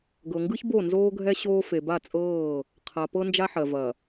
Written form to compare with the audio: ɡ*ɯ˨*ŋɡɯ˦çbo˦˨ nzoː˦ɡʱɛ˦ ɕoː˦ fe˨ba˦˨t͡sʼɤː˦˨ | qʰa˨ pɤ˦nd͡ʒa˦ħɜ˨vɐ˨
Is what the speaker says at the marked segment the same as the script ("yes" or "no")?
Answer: no